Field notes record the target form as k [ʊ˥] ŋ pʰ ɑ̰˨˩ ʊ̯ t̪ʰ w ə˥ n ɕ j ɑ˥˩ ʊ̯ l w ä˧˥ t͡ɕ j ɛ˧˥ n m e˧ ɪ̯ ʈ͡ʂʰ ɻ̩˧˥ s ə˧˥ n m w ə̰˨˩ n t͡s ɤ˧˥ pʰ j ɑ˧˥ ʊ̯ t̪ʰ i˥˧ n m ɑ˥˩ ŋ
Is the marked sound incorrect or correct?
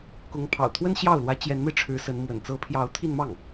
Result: incorrect: ʊ˧˥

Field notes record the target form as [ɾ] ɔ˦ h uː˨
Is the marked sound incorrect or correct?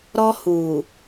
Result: correct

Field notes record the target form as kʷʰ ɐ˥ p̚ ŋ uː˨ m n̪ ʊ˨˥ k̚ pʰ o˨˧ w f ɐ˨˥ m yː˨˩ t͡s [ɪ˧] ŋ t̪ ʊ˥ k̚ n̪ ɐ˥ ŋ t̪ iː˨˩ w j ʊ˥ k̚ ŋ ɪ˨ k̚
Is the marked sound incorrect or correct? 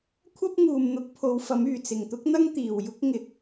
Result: incorrect: ɪ˨˩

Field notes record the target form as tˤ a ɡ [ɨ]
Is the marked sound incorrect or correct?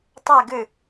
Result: correct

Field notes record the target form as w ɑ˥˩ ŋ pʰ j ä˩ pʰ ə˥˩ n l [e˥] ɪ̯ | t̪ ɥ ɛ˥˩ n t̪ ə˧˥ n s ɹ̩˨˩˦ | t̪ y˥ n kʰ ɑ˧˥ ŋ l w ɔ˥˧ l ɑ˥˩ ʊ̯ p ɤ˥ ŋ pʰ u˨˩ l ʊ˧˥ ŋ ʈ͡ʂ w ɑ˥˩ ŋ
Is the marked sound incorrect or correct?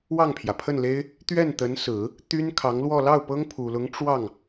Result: correct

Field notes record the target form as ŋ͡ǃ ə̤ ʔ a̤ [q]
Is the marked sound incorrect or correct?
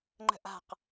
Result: correct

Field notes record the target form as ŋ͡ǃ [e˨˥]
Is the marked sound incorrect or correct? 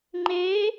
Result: incorrect: eː˨˥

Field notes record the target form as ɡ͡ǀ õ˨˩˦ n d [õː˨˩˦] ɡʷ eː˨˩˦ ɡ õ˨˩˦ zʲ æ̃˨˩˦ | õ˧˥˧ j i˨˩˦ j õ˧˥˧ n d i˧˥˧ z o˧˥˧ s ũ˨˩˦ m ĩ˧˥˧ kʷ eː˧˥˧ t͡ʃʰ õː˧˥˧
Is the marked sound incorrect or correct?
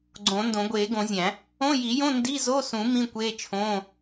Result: incorrect: õ˨˩˦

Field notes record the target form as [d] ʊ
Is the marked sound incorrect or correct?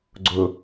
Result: incorrect: ɡ͡ǀ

